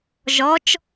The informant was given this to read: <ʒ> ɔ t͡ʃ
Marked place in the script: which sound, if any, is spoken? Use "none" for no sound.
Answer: ʒ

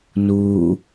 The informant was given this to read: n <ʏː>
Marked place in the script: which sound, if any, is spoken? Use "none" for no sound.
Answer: uː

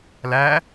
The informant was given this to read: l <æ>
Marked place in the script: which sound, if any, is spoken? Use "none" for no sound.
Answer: æ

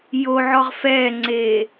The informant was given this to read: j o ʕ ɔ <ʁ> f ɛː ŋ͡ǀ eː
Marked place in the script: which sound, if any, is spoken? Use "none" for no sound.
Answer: ʁ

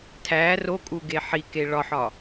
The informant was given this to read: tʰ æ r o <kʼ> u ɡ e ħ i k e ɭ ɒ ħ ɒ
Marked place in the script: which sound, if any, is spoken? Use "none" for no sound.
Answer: kʼ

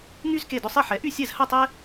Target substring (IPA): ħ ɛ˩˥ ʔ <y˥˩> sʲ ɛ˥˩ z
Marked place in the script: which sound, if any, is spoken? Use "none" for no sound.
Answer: y˥˩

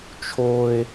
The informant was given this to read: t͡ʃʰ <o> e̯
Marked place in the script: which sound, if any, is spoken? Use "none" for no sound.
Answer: o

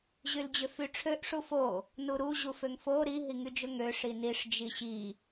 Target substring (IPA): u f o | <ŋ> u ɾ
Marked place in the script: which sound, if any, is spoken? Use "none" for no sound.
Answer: n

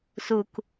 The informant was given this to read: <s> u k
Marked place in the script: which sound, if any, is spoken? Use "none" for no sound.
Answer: s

